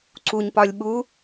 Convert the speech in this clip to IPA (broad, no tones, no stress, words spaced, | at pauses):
ǀuɲpɒlʲ ɓu